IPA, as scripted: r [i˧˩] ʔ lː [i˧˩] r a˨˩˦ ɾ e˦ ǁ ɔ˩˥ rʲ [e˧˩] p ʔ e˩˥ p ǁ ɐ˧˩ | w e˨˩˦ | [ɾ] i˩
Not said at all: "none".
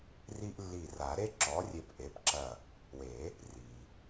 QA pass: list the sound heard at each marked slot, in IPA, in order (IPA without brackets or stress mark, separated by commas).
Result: i˦, i˧˩, e˧˩, r